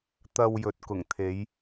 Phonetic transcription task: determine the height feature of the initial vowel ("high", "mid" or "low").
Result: low